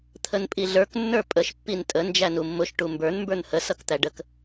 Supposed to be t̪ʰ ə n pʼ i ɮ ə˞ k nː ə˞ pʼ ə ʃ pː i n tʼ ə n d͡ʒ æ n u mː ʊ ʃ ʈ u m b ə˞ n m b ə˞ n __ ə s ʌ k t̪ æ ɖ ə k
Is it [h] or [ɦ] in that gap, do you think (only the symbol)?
h